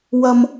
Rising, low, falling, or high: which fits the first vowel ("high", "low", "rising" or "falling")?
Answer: high